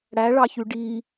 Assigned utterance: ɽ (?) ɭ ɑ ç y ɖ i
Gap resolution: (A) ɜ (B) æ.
B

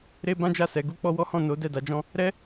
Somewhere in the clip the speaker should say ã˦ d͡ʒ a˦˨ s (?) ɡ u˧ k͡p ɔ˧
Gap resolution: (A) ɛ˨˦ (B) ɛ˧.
A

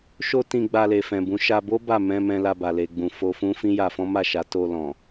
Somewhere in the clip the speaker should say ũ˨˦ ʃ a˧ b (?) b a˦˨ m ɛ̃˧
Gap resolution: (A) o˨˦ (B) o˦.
B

